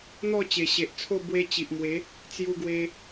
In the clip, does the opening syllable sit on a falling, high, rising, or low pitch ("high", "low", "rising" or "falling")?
falling